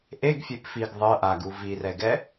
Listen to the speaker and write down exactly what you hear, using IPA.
ʔeɡfʲep fiɡ ðˤɤ ʔaɡu virɛɡɛ

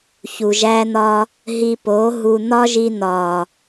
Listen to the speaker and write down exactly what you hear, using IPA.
çu˨ʒæ˦n̪ɒ˦ | ɦi˧po˨˦ ɦu˧ n̪ɒ˦ʒi˧n̪ɒ˨

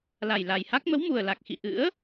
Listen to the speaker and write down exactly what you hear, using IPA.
la˨˩jla˨˩jha˦˥k̚ mə˨˦wmu˨˩ə̯la˨˩k̚xḭ˧˨ ʔɨ̰˧˥ə̯

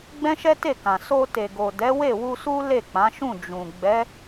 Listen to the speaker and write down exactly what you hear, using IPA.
ɡ͡bɛ̃˦ʃɛ˦ te˦˨ kã˨ so˧ te˨ɡo˨ dɛ˨˦we˦˨wu˧su˦ le˦˨k͡pã˨˦ʃũ˦˨ d͡ʒũ˨ ɡ͡bɛ˨˦

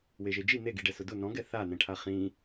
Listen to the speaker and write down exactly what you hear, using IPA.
weʒed͡ʒi n̪eɡi ɖɛsʊdʊ nɔ̃ɡɛ θanɛ̃ʈʰa χĩ

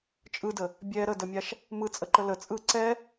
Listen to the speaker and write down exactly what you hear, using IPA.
t͡ʃʼɯdə | bʲɛ ɾədəmʲaʃ | mɯt͡sʼəǃə lə t͡sʼɯ ǀɛ

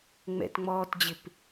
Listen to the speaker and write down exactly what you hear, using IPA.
ŋ͡mɛ̰tŋ͡mɔːtd͡ʑɪp

